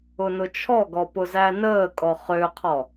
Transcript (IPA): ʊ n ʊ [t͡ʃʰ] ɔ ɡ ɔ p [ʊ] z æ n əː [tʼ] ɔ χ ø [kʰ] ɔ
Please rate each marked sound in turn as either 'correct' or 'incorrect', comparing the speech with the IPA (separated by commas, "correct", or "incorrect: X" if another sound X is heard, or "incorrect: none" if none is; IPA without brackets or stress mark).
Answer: correct, correct, incorrect: kʼ, incorrect: qʰ